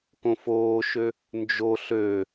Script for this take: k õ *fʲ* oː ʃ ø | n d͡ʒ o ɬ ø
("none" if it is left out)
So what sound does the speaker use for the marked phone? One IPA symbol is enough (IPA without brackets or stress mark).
f